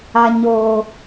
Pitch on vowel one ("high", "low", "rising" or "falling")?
low